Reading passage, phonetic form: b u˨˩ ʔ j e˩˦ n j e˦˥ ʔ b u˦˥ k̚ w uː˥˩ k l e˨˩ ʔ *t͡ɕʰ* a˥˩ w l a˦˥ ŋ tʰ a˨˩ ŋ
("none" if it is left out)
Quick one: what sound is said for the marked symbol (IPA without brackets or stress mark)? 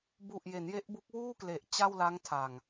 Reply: t͡ɕ